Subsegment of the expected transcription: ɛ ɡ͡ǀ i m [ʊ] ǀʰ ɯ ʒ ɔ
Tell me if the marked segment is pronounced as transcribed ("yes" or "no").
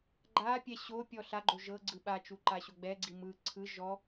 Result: no